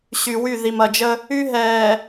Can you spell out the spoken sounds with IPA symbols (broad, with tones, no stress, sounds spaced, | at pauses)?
ɕ y˨ w y˦˨ ð i˨ m ɐ˨ d͡ʒ ə˦ | y˦ ɦ ɛː˨